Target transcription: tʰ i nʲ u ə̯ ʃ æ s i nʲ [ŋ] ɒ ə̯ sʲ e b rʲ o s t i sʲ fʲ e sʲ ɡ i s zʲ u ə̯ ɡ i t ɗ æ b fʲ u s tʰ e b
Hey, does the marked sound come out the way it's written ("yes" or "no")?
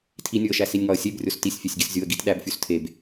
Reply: yes